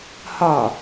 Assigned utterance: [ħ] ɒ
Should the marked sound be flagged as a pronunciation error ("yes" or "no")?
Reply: yes